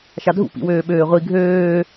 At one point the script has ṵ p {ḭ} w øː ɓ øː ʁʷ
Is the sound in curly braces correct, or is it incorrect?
correct